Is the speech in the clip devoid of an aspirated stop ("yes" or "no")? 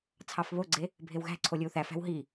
no